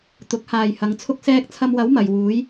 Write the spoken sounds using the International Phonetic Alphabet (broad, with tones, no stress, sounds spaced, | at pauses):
t̪ ʊ˨˥ k̚ h aː˨ j h ɐ˨˧ ŋ t͡sʰ ʊ˥ k̚ s ɛː˧ k̚ t͡sʰ ɐ˧ m w ɐ˨˥ w m ɐ˨ j w uː˨˥ j